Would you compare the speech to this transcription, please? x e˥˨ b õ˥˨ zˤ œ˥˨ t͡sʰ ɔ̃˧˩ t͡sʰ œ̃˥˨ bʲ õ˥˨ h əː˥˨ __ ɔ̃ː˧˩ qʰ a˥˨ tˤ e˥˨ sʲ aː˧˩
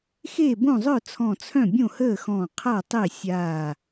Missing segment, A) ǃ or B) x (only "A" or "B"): B